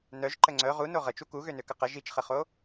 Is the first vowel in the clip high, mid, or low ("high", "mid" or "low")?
mid